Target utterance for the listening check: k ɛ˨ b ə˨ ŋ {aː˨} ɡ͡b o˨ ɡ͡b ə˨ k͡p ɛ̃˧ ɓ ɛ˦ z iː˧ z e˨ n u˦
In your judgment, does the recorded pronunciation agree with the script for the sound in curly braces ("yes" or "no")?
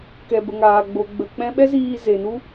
yes